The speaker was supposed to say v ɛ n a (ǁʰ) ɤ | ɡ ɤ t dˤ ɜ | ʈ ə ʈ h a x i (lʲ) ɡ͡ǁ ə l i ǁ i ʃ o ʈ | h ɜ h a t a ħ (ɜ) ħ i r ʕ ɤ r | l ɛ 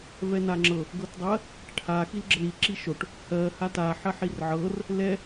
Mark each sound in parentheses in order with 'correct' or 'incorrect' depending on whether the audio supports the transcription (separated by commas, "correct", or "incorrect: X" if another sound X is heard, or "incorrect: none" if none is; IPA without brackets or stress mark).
incorrect: ŋ͡ǁ, incorrect: l, correct